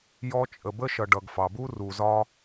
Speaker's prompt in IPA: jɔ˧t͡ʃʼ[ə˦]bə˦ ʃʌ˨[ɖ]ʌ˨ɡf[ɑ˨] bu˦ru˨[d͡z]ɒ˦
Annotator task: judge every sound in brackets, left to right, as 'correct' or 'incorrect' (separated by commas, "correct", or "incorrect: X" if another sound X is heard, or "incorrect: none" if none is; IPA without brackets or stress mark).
incorrect: ə˨, correct, correct, incorrect: z